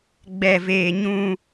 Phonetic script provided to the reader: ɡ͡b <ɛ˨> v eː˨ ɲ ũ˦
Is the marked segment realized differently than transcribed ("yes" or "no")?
no